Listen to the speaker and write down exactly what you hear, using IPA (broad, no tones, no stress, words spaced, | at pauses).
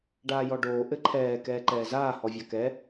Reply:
ɖaːjɔɖoː ʔɘǃʰɛː kɛːǃɛːzaː hɔvʲakɛ